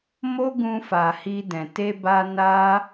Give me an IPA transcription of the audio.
m o˦ ɡ ũ˧ f a˨ h i˧ d ɛ̃˨ t e˧ b a˧ n a˦

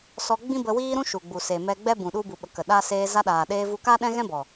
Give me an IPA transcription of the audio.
s ɔ˧ ɡ͡b ĩ˦ b ə˧ w iː˦ ɾ ũ˦ ʃ u˨ ɡ͡b u˨ s e˨ m ɛ˧ ɡ͡b ɛ˦ b ũ˨ ɗ u˧ b u˨ ɓ ə˨ k ə˨ ɗ a˧ s eː˧ z a˧ ɗ aː˨ ɗ eː˧ v u˧ k a˦ ɗ ɛ̃˦ ɣ ɛ̃˦ b ɔ˨

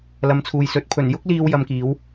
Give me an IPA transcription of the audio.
l ɐ˨˧ m t͡sʰ uː˨ j s ɵ˨˥ t̚ pʰ ɵ˨˩ n j ʊ˥ k̚ l iː˧ w j ɐ˧ m k iː˨˥ w

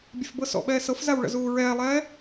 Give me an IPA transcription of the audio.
bʲ ɛ f b ɤ s ɔ̰ ɓ ɛː s ɤ f z a w ɭ ə̰ z uː ɹ ɛː lˠ ɛː

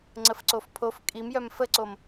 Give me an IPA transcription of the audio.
ŋ͡ǀ ə f ǀ o f pʰ o f kʼ i m j œ m f ə ǀ o m

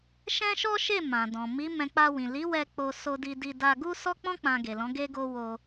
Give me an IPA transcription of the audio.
ʃ ɛ̃˦ ʃ ɔ˦ ʃ e˦˨ m ã˨ d ɔ̃˨ m i˨˦ m ɛ̃˧ k͡p a˧ w ĩ˨ l i˨˦ w ɛ˧ k͡p o˧ s o˧ d i˧ d i˧ d a˧ ɡ u˦ s ɔ˦ k͡p ɔ̃˦ k͡p ã˧ ɡ e˨ l ɔ̃˨˦ ɡ e˦ ɡ o˦ w o˧

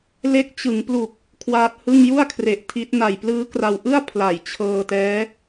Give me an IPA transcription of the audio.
l e˦˥ k̚ t͡ɕ ɯ˩˦ ŋ p l u˨˩ k̚ | kʰ w aː˦˥ t̚ h ɯ˥˩ ŋ j u˥˩ a̯ kʰ r e˨˩ ʔ tʰ i˦˥ t̚ n a˨˩ j p l ɯː˦˥ k r a˧ w ʔ ɯ˥˩ a̯ pʰ l a˨˩ j t͡ɕʰ ɤː˧ t ɛː˦˥

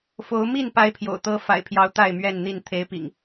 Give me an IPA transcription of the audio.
f o˨˦ ʊ̯ m i˥˨ n p a˦ ɪ̯ pʰ j o̰˨˩ ʊ̯ t̪ ɤ˦ f a̰˨˩ ɪ̯ pʰ j ɑ˨˦ ʊ̯ t̪ a˥˨ ɪ̯ m ɥ ɛ˥˨ n n̪ i˥˨ n t̪ʰ e˦ ɪ̯ p ḭ˨˩ ŋ

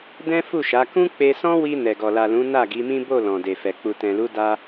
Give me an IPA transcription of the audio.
d ɛ̃˦ f u˦˨ ʃ a˨˦ k ũ˧ k͡p e˧ s ɔ̃˦ w i˧ n ɛ˨ ɡ ɔ˨ l a˨ l ũ˨˦ n a˦˨ ɡ i˨˦ m ĩ˦ b o˦˨ l ɔ̃˨ d e˨ f ɛ˨ k͡p u˨ t ɛ̃˨ l u˨˦ d a˧

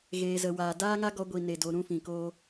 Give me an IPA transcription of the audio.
ɣ eː˨ z ə˨ w aː˨ d aː˦ ŋ a˦ ɡ ɔ˧ ɡʷ i˨ n e˧ d o˧ ɾ ũ˦ f ĩ˨ k oː˦

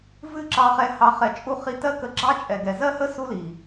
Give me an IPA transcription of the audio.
v ɨ˦˨ ǁ ɑ˧ χ ɛ˧ h ɑ˨ χ ɛ˨ t͡ʃʼ u˧ χ i˧ t ɜ˦ k ə˧ ɡ͡ǁ ɑ˦ t͡ʃʼ ɛ˨ ɡ ɛ˨ z ɜ˦ h ə˦ s u˦ l i˨

